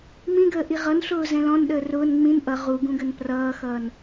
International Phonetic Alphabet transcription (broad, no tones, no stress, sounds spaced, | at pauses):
m ĩ ɡ əː ʔ i ʁ ʌ n ɬ ʊː z ɛ̃ l ɔ̃ n ɗ əː r ʊː n ŋ͡m ĩ n ʔ ʌ ʁ u ɡ ũ ɡ ə n p r ʌː x ʌː n